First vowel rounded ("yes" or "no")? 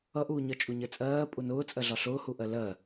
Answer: no